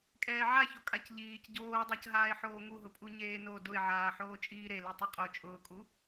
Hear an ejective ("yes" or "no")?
yes